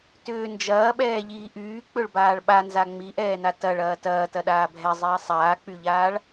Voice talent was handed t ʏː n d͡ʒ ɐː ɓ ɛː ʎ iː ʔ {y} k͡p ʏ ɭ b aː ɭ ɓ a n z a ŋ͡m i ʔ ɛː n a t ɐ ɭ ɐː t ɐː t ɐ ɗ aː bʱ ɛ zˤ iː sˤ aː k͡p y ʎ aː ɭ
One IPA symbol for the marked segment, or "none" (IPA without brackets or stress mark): yː